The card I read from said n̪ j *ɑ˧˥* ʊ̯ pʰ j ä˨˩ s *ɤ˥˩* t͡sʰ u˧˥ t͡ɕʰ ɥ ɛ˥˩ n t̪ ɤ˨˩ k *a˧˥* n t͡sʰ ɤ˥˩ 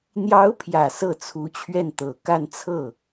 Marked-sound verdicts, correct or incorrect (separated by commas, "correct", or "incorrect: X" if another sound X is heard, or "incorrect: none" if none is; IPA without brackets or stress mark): correct, correct, incorrect: a˥˧